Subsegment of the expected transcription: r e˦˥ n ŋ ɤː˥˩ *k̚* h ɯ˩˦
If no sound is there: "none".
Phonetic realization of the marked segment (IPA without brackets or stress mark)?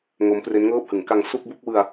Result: p̚